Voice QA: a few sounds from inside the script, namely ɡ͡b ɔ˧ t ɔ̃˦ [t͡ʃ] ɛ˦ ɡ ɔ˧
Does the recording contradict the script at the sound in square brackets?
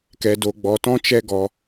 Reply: no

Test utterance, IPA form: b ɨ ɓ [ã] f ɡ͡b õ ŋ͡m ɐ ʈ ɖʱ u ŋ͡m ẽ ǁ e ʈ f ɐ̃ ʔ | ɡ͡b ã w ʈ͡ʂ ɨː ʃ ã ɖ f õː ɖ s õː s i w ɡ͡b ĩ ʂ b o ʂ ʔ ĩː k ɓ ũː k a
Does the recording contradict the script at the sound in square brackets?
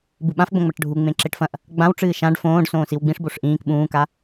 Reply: no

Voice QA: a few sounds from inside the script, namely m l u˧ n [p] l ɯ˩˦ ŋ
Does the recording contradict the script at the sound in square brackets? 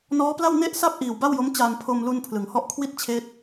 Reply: yes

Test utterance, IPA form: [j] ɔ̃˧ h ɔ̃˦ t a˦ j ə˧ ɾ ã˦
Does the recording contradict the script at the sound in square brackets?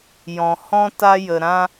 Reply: no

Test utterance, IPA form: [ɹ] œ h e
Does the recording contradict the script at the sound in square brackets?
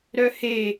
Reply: yes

